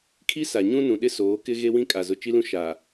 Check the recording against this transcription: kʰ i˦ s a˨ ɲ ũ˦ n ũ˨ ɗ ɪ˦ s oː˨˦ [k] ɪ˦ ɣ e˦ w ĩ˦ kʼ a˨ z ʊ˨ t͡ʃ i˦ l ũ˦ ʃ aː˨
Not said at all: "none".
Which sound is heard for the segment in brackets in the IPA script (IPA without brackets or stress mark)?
k